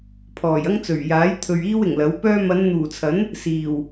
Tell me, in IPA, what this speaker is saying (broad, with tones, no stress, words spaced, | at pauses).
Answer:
pʰɔː˨˩jɐ˥ŋt͡sɵ˨˩ɥ jaː˨˥jt̪ʰɵ˨ɥ iː˥wɪ˨˩ŋlɐ˨˥wpœː˥ mɐ˨˧nn̪uː˨˩t͡sʰɐ˨˥n | siː˨˩w